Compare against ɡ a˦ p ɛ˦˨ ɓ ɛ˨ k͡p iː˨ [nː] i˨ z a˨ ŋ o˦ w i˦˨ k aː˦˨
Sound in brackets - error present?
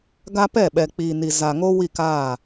yes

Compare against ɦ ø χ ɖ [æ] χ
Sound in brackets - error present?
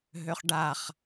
yes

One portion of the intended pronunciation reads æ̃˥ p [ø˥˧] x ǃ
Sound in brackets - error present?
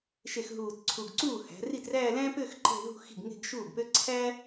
no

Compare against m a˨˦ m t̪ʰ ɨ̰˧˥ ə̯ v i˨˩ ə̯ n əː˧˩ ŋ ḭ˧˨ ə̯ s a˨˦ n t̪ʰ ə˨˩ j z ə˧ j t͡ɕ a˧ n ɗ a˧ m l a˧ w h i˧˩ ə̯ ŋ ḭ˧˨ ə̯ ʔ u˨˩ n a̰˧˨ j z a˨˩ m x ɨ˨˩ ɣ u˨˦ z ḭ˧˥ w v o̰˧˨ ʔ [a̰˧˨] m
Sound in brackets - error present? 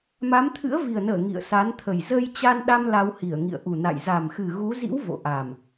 yes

